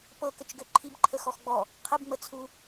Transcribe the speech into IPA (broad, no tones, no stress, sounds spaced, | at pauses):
p ɤ k ə t͡ʃ ɡ ø ǃʰ i b ǃʰ ə x ɔ x ɡ͡b ɔ | qʰ ə b ŋ͡m ə t͡sʰ u